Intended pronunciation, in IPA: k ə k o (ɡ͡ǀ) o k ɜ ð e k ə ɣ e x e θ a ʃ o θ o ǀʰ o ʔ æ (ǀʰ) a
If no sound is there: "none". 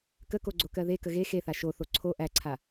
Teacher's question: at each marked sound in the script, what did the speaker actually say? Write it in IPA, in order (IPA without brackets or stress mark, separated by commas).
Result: ɡ͡ǀ, ǀʰ